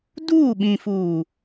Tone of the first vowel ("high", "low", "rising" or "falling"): falling